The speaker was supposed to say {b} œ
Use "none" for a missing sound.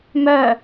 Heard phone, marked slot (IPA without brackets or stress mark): m